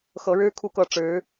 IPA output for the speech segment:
x ɤ˧˥ ɻ ɻ̩˥ kʰ u˥˧ k ɤ˥˩ ʈ͡ʂ ɻ̩˧˥

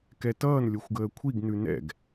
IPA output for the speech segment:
k ɛ t ʌː n lʲ o xʷ ɡ əː kʷʰ i ɡ n ʉ n ɛ̰ ɡ

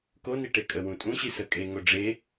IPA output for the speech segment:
k o n i ʈ e kʼ ə w ũ tʼ ũ ɕ i s ə kʼ e ŋ o ɖ͡ʐ e

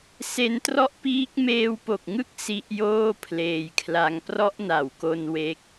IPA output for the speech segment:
s e˧ n t r ɔ˦˥ ʔ p iː˦˥ k̚ m eː˧ w p o˨˩ k̚ ŋ ɯ˦˥ k̚ s i˦˥ ʔ j oː˥˩ pʰ l eː˧ j kʰ l a˦˥ ŋ p r ɔ˦˥ ʔ n a˨˩ w k o˧ n w e˦˥ k̚

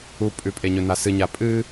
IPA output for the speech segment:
u pʼ ʉ pʼ e ɲ ɵ n a s ɨ ɲ a pʼ ɨ

